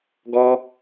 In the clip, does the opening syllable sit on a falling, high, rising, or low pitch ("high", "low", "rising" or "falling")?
high